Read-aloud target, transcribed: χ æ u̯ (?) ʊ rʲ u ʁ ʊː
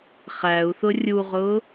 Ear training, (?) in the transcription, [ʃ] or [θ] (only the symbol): θ